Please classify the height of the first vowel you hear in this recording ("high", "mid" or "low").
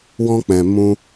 mid